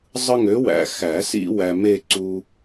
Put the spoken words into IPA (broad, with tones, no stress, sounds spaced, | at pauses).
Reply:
zˤ ɯ˦ ŋ ø˨˥ w æ̰˨ x æ˨˩˦ s ḭ˦ w æ˨ m e˦˨ ǀ u˦